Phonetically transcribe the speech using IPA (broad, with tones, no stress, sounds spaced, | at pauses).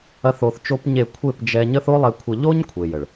ɐ˦ θ o˧ θ t͡ʃ o˦ p ɲ e˦˨ kʷʰ e˦˨ p d͡ʒ ɛ˧ ɲ ə˦ θ o˦ lˠ ɛ˧ kʷʰ ə˧ ʎ o˦ ɲ kʷʰ e˨ j ə˨ ɭ